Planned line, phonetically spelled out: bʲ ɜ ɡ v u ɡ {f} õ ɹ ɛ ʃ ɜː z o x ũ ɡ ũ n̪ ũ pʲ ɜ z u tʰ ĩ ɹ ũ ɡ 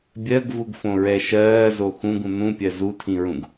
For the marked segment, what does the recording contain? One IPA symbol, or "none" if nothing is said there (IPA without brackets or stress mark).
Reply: f